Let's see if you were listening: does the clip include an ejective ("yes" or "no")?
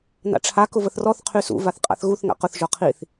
yes